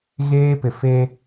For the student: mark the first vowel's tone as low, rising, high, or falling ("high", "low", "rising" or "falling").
high